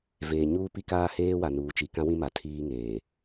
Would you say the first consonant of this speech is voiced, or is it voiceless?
voiced